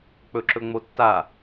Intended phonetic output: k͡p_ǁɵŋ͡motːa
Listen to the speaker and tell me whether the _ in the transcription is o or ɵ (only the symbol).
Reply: ɵ